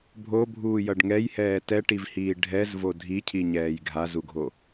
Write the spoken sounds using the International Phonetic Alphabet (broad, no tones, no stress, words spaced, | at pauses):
bʱobʱuːjʌɖ ŋɛjhɛː tɛʈivhiː ɖʱɛzvo dʱicʰiɲɛːj ɡʱazuɡʱo